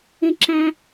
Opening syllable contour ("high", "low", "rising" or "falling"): high